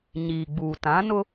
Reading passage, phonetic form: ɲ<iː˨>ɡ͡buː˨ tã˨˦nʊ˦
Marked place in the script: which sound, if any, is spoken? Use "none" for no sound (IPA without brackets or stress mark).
iː˨